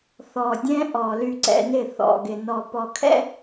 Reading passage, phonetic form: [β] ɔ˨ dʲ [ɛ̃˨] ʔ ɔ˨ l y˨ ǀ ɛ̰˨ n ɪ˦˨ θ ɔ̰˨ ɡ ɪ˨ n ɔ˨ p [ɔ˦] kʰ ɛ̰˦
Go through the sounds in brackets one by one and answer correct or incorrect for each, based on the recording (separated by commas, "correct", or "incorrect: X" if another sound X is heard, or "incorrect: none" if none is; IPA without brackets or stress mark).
incorrect: θ, incorrect: ɛ̃˦, incorrect: ɔ˨